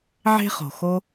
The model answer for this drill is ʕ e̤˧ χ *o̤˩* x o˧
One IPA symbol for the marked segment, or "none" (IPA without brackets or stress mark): o̤˩